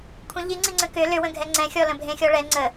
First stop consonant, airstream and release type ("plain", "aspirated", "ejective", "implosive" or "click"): aspirated